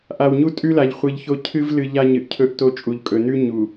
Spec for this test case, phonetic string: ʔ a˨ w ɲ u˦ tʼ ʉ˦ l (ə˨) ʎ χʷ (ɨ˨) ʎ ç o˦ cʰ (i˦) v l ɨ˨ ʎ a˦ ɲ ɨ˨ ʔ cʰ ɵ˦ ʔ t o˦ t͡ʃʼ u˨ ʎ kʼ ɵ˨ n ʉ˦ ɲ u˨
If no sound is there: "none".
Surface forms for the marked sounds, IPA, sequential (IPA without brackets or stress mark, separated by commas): a˨, ɨ˨, ɨ˦